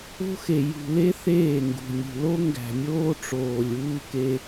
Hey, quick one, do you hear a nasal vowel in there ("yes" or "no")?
no